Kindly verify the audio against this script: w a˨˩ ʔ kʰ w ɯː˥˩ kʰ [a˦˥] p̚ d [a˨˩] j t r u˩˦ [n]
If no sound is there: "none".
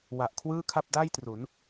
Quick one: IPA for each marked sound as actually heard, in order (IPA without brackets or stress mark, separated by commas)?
a˥˩, a˥˩, n